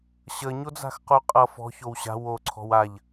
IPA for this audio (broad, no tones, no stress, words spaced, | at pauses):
ɕəɲod͡za̤xqu qʼʌ fɔ̤çow ɕa̤ woǀʰɔ̤w aʎ